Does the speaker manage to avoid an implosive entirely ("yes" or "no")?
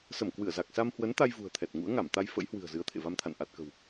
yes